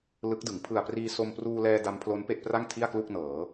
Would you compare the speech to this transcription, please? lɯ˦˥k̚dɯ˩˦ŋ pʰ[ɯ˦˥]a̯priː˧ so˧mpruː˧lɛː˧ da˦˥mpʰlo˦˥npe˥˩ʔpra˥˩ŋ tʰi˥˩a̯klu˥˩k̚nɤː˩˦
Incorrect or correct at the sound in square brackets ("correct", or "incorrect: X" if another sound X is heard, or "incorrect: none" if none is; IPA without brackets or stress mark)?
incorrect: ɯ˨˩